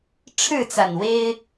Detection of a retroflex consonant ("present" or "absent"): present